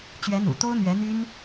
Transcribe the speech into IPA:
t͡ɕ ɥ ɛ˧˥ n̪ ṵ˨˩ t̪ o˥ ʊ̯ n̪ ɥ ɛ˧˥ n̪ y˥ n

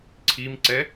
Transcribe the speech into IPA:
ǀʰ i m ǀ ɛ

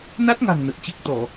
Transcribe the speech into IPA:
n a˦˥ t̚ ŋ a̤˨˩ ŋ n ə˨˩ t̚ t͡ɕ e˦˥ k̚ t̪ ɔ˧˩˨

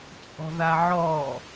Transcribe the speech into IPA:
t͡sʼ ɔ̤ ð a ʕ ɔ

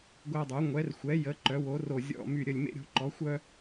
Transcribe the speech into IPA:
ɡʷ ɛ˧ dˤ u˩˧ ŋʷ ɛ˩˧ r xʷ ɛ˩˧ j ə˩˧ ǃ œ˩˧ w o˩˧ r o˨˩ zʲ ɔ̰˨˩ m y˨˩ ɾʲ ə˨˩ lʲ m ḛ˧ ɾʲ o̤˩˧ ǃ ɔ˩˧ xʷ œ˧

